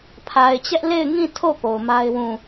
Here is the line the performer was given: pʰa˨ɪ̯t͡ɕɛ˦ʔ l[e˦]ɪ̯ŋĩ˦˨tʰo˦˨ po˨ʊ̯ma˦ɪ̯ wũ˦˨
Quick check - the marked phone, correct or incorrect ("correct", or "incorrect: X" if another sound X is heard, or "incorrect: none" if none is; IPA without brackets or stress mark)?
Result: incorrect: e˦˨